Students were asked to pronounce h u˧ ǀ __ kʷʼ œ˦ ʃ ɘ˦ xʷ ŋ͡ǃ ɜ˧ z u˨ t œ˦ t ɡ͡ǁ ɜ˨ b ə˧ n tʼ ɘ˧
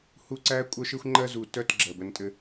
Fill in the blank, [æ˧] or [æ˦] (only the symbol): æ˦